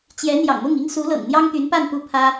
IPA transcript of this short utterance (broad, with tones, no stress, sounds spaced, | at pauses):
t͡ɕ j ɛ˧˥ n̪ j ɑ̰˨˩ ŋ m ʊ˥˩ ŋ i˥ ŋ s u˧˥ l ɤ̰˨˩ ŋ n̪ j ɑ˥ ŋ t̪ y˧˥ n p a˥˧ n p u˥˩ pʰ ä˥